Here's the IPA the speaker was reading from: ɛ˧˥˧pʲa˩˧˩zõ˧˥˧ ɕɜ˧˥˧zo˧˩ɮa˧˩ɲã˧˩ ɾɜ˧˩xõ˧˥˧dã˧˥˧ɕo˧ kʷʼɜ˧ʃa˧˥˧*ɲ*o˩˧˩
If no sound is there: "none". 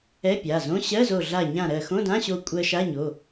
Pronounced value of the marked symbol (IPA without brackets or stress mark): ɲ